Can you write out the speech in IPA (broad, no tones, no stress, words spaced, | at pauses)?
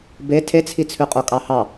be tʰet͡sʰi t͡sʰʉqʼokʼɑhɑ